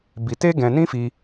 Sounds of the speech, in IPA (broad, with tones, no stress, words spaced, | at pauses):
bi˧te˦ɡɛ̃˧ nĩ˦fi˧